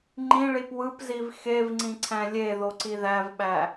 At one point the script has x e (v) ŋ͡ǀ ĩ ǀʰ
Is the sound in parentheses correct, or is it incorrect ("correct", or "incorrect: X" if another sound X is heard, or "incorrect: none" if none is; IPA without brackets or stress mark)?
correct